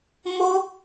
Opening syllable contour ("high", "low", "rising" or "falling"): high